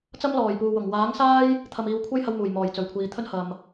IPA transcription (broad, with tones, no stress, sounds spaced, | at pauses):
t͡s ɐ˥ m l ɔː˨˩ j p uː˨ w ʊ˨˩ ŋ w aː˨˥ ŋ s aː˥ j | t̪ʰ ɐ˨ m iː˨ w kʷʰ ɐ˥ j h ɐ˧ w m uː˨˩ j m ɔː˨˩ j t͡s ɵ˨˩ ɥ kʷʰ iː˨ t̪ʰ ɵ˥ n h ɐ˧ m